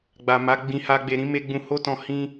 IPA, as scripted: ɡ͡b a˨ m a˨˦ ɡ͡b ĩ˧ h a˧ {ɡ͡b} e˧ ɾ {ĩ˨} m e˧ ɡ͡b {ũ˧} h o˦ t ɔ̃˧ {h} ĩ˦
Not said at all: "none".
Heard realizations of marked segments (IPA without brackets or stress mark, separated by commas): ɡ͡b, ĩ˧, ũ˧, h